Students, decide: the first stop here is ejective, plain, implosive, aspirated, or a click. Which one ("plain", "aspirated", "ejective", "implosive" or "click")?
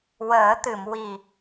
plain